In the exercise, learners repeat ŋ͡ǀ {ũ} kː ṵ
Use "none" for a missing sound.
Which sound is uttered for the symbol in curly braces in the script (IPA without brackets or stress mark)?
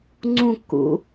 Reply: ũ